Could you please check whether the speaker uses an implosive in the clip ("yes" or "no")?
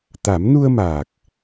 no